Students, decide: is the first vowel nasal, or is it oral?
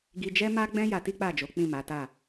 oral